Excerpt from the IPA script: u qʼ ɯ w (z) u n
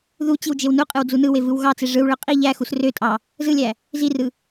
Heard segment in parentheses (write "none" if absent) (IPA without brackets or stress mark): d͡z